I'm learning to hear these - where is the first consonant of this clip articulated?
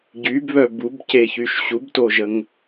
palate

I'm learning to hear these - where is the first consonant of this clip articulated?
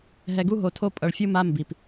throat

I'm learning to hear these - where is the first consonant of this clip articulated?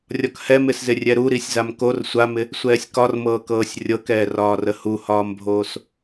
tongue tip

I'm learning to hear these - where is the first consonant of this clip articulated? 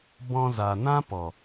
lips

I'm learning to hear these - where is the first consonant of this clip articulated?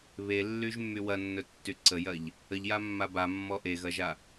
lips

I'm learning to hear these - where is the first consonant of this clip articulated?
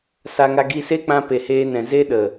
tongue tip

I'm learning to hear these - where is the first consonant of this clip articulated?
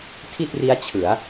tongue tip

